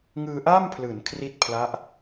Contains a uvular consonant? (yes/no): no